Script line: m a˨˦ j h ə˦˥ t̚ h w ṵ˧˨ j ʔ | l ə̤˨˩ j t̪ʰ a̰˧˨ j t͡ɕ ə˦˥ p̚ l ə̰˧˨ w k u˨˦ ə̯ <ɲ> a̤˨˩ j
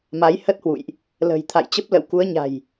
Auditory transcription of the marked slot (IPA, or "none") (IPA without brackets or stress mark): ɲ